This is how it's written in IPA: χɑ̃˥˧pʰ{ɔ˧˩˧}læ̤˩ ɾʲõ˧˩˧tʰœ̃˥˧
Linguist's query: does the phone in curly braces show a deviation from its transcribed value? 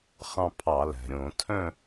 yes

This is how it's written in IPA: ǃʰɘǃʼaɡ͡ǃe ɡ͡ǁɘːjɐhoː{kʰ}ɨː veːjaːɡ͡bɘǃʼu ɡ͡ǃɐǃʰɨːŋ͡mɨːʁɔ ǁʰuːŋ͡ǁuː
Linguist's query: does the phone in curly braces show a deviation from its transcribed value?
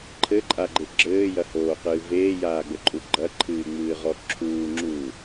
yes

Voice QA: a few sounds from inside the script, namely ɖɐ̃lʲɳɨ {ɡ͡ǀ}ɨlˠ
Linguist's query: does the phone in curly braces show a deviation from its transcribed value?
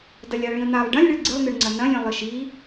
no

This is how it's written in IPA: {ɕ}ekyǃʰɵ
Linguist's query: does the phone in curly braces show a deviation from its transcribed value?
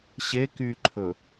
no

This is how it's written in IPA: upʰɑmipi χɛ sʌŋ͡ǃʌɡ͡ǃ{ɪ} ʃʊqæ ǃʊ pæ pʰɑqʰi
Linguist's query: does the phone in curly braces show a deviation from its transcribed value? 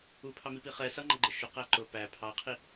no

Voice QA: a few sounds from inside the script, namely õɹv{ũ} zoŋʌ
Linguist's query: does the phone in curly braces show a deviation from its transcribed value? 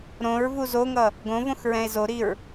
yes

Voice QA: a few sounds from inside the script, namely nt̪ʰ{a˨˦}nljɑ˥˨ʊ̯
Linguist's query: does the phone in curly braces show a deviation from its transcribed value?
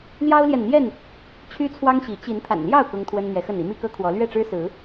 yes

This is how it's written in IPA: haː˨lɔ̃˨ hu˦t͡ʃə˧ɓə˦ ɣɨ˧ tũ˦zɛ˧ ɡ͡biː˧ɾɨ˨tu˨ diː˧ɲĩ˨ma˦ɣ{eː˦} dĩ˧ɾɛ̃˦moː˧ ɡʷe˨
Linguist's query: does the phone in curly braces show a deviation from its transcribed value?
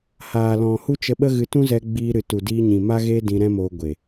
no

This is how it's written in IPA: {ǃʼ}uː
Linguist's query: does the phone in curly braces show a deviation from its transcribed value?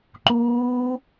yes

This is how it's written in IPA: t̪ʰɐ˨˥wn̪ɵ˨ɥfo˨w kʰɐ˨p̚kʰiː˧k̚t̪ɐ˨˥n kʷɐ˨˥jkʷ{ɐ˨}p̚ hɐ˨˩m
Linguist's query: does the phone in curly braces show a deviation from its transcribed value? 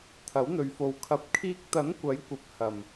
no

